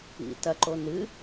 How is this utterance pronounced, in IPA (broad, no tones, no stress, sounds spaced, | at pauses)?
ḭ t ɐ ǃ o n ɨ